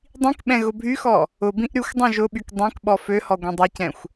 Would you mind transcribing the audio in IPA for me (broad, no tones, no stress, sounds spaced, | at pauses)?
dˤ ĩ k ɓ ɛ̃ ɣ ʊ bʱ y x ɔ | ʊ b ĩ ʔ ɾ y xʷ dˤ œ̃ ʒ ʊ ɓ y k dˤ ɛ̃ k ɓ ɔ f ø h ɔ ɡʷ ɛ̃ dˤ ɛ c ɛ̃ xʷ